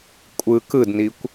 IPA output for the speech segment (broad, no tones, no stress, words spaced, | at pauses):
kʷʼɯ kɯdnikʷ